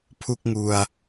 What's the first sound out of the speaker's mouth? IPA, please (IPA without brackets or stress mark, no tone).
pʰ